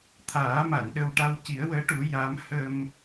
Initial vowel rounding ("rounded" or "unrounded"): unrounded